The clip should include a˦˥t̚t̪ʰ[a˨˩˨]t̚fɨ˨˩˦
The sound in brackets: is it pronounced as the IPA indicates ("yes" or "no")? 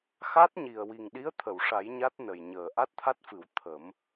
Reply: no